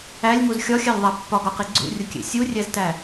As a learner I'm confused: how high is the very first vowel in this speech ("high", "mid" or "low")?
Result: low